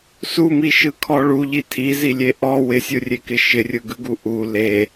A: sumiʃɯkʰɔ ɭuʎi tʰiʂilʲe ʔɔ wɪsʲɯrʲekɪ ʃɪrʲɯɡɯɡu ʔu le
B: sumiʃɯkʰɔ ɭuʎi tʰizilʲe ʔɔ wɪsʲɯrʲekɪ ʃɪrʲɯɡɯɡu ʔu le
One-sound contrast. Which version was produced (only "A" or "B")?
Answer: B